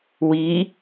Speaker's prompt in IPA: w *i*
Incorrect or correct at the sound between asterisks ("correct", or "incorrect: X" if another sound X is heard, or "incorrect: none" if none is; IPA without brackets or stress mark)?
correct